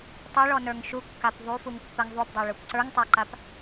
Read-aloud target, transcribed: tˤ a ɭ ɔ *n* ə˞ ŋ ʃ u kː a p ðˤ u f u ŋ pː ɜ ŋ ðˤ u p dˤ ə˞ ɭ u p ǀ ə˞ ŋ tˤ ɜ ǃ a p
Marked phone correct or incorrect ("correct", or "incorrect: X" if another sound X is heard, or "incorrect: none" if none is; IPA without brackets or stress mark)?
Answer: correct